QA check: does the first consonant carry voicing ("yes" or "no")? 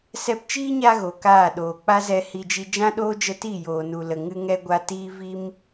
no